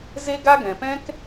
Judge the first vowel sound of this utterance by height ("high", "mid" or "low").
mid